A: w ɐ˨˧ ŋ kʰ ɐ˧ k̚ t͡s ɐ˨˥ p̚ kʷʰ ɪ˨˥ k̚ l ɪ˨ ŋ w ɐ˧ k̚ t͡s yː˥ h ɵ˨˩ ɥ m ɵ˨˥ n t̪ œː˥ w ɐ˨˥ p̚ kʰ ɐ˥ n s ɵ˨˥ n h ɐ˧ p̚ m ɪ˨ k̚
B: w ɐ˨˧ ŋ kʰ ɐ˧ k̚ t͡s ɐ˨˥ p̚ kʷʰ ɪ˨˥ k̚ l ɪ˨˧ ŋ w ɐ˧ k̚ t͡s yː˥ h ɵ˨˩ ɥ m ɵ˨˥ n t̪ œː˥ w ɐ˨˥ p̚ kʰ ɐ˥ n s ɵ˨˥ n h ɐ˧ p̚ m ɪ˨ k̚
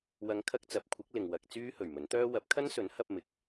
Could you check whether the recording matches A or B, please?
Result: A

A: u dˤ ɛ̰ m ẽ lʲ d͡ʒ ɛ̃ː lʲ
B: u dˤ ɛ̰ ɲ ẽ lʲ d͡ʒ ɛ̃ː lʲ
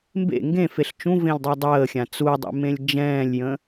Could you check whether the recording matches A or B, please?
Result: A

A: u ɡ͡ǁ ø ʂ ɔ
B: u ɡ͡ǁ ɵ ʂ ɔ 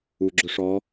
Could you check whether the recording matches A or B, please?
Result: B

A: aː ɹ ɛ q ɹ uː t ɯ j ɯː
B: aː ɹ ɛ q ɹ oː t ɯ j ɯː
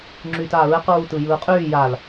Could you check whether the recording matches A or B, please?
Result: A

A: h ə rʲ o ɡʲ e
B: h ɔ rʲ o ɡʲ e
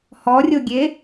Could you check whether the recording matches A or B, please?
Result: B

